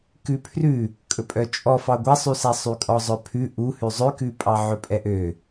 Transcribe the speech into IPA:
k ʉ pʰ r ʉ | kʼ ɵ pʼ œ t͡ʃʼ ɔ f ɑ ɡʷ æ sˤ y s æ sˤ y kʼ ɔ zˤ œ pʰ ʉ ʔ u h ʉ zˤ ø k ʉ pʼ ɑ ʕ ɵ pʼ ɛ ʔ ø

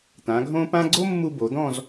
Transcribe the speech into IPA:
t̪ ã˩˧ ɡʱ õ˥ p ã˥ ɡ͡ǀ o˥ mː u˧ b o˩˧ d̪ ɔ̃˥˧ z

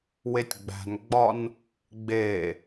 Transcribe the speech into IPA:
w e tʲ ɡ͡b æ̤ n ɡ͡b ɒ n | ɡ͡b e

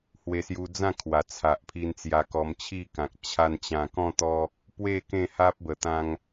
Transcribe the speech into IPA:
h w e˧ s j u˧ d͡z ã˥˧ kʰ w a˨˩ t͡sʰ a˨ ʔ pʰ i˧ n t͡s j a˧ k ɔ˧ m t͡ɕʰ i˥˧ k ã˨ k̚ t͡ɕʰ a˧ n t͡ɕ ã˨˩ k ɔ̃˥˧ t̪ ɔ˧ | p w e˥˧ k ẽ˥˧ h a˦ p̚ b ə˨˩ t̪ ã˧ ŋ

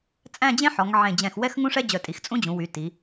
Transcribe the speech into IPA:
t͡sʼ æ̃˥˧ d͡ʑ ẽ˥ ħ ɔ˩˧ ŋ ʕ ẽ˧˩ d͡ʑ ɛ̃˧˩ x w ɛ˥ x ŋ ũ˥ ʂ ɛ˥ d͡ʑ œ˧˩ tʼ i˩˧ x t͡sʼ ũ˥ d͡ʑ ũ˩˧ w y˩˧ t i˩˧

